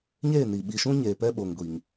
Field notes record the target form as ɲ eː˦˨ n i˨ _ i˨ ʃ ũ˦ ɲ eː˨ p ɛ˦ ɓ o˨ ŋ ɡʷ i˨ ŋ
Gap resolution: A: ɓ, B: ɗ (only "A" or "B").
A